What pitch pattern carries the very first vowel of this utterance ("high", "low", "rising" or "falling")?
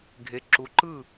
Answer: rising